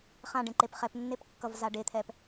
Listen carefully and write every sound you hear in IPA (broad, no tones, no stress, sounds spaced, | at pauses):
χ ã ɖ ẽ ǃ e p χ ɛ p nː e p kː ʌ v z a ɖ e t̪ʰ ɛ p